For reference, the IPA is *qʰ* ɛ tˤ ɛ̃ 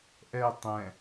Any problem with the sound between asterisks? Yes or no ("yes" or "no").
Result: yes